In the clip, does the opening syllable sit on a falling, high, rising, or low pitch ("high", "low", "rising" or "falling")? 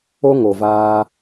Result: high